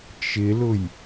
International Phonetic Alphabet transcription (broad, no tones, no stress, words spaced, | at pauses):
t͡ʃɪlʊj